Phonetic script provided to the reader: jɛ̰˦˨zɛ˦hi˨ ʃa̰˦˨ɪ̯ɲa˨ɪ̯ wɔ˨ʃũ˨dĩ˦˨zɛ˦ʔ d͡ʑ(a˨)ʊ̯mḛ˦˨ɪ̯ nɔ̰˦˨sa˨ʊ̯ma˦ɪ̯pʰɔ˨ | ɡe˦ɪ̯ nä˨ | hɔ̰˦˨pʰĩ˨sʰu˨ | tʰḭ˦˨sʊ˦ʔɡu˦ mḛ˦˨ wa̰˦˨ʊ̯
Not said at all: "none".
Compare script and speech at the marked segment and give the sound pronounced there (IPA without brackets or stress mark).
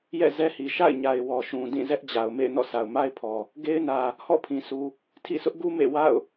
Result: a˨